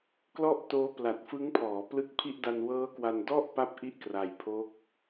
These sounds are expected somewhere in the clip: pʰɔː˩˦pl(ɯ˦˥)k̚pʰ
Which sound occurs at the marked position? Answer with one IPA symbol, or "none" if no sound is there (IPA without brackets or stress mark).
ɯ˦˥